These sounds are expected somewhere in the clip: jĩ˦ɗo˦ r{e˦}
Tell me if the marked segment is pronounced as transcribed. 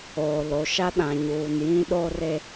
yes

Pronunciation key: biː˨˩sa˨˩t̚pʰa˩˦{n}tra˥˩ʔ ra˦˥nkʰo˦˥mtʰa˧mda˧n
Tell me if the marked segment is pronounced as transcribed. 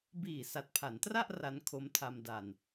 yes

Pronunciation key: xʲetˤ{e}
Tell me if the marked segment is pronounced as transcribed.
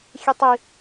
no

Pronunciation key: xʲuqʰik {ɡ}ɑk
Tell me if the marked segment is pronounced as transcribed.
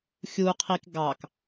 yes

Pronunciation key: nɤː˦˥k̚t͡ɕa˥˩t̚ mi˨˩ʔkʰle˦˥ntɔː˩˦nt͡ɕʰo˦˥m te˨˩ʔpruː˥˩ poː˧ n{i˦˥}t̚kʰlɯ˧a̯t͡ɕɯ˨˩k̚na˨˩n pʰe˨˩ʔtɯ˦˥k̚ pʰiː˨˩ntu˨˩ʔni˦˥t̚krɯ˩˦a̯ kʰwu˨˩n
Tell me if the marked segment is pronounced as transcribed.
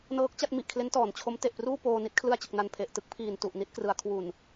yes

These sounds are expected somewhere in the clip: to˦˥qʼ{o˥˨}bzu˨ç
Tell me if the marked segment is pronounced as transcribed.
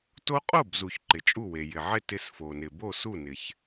yes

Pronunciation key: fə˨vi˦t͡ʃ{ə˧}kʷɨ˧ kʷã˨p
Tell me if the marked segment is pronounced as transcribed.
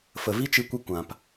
no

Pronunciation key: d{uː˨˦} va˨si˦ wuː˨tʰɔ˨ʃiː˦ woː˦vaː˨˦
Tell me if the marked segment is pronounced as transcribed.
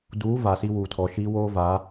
yes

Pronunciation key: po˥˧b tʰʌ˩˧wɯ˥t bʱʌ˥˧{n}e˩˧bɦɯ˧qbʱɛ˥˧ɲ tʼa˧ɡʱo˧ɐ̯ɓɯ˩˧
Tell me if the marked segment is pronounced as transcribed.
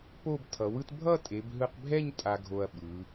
no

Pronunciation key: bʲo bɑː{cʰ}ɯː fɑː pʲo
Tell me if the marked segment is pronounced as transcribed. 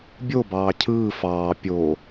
yes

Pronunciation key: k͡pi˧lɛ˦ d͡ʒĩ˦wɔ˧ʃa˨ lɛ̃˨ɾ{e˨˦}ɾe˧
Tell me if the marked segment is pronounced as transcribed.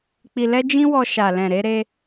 no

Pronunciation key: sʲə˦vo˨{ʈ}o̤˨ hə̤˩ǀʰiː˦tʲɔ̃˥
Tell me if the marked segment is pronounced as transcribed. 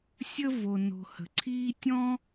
no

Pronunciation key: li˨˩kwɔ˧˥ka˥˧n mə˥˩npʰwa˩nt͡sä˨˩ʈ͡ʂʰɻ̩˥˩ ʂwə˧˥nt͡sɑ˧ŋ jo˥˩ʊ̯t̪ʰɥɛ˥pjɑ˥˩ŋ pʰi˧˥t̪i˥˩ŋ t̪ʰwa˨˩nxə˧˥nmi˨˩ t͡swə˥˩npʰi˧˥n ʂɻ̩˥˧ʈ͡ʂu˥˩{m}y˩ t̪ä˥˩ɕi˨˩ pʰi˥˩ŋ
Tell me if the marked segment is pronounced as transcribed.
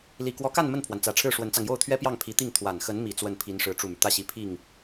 yes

